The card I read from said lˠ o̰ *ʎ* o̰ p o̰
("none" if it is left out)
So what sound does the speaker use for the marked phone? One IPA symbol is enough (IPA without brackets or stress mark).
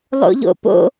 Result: ʎ